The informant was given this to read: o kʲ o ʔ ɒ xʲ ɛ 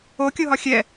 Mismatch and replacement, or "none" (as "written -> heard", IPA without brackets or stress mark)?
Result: ʔ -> ɦ